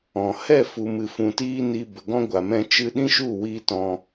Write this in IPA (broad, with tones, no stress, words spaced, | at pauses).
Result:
ɔ̃˨ hɛ˦˨fu˨mɨ˨ fũ˨tiː˦ni˧ bə˨ɡɔ̃˦ɡʷa˨ mɛ̃˧t͡ʃɨ˧ɗĩ˦ʃu˦˨ wi˦ tɔ̃˧